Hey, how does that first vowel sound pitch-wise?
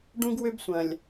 high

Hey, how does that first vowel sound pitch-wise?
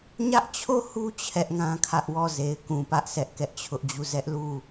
high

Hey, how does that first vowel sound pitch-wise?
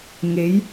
rising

